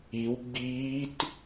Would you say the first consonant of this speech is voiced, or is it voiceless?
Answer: voiced